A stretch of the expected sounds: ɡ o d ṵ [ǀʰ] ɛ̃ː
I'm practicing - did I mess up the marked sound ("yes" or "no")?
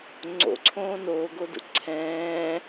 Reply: no